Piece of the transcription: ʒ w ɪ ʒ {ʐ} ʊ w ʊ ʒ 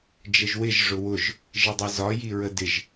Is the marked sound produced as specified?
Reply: yes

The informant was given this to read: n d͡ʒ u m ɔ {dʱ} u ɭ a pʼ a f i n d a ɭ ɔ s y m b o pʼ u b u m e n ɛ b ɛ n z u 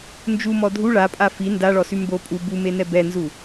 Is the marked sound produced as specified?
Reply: yes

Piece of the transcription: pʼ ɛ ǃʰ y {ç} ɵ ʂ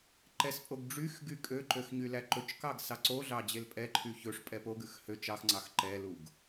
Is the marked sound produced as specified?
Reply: yes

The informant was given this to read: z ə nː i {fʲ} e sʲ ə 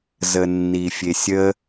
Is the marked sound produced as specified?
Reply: yes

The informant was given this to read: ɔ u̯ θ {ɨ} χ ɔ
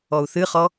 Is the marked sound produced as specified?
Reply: yes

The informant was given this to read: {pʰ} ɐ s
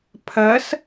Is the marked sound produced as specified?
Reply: yes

